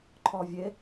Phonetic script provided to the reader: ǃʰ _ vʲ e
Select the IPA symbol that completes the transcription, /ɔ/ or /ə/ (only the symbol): ɔ